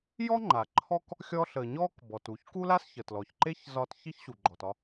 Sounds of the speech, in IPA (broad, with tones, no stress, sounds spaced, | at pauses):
j ɔ˥ ŋ͡ǃ a˩ ǃʰ ɔ˥ k | xʲ ɔ˧ ɬ ə˩ ɲ ɔ˥ k b ɔ˩ t u˩ ç k u˥ l a˥ s ç ə˩ t l ɔ˩ ç ǃ e˥ ç z ɒ˧ t ç i˥ ç ɕ u˩ ɡ͡ǃ ɔ˩ t ɒ˧